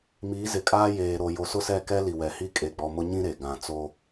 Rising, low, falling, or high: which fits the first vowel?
rising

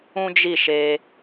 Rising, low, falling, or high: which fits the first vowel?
high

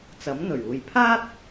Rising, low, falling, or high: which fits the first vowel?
rising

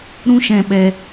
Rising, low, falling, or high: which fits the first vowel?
high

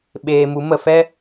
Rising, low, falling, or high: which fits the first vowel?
low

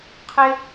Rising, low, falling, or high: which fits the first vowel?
high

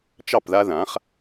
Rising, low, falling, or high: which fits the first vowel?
falling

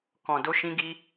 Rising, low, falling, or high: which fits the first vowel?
low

